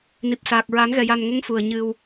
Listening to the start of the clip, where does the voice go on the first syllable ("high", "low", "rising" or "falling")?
low